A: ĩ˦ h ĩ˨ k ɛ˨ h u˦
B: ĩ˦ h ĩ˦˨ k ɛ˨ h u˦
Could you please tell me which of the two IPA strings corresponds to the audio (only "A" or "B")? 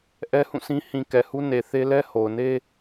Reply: A